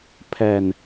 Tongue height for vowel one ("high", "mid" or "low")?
mid